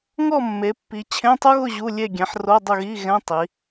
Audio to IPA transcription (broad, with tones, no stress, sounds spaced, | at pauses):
ŋ ɔ˥˨ mː e˩˧ pː i˩˧ t͡ɕʰ ẽ˧˥˧ tˤ u˥ ɣ ʊ˥˨ ʑ u˧˥˧ lʲ e˥˨ ɡʲ ɛ̃˩˥ ħ r o˧˥˧ dˤ ʊ˥˨ ɣ i˧˥˧ ɣ ɛ̃˧˥˧ tˤ i˩˧